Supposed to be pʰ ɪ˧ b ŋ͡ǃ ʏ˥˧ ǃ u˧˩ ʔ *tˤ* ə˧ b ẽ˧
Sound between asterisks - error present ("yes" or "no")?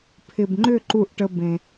yes